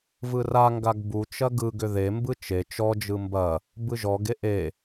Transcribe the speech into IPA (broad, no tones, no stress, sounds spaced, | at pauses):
v ɯ r a ŋ ɡ a ɡ b u t͡ʃ ɐ ɡ ɯ ɡ ʏ ð e m b ɯ t͡ʃ e t͡ʃ ɔ d͡ʒ ɯ m b ɐ | b ɯ ʒ ɔ ɡ e ʔ e